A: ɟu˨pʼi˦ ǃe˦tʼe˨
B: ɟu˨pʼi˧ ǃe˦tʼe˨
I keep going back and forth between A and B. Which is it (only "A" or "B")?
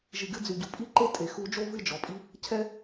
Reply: A